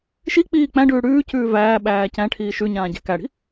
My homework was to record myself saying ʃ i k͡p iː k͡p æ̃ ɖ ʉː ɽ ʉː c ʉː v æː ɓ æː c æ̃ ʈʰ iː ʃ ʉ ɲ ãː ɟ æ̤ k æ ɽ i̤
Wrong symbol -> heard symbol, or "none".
none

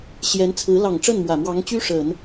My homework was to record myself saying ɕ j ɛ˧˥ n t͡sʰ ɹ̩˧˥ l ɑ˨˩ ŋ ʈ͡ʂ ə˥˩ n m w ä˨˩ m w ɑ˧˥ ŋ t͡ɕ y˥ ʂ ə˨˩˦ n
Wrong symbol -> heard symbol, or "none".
none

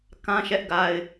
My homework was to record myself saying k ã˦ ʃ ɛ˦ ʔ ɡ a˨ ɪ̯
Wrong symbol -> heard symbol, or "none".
none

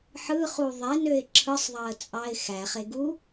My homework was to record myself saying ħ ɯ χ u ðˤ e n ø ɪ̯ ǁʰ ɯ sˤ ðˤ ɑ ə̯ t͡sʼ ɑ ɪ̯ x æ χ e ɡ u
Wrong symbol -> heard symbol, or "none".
none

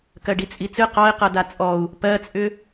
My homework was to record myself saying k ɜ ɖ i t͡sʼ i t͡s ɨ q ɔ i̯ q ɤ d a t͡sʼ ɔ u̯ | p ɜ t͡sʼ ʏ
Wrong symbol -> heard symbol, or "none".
none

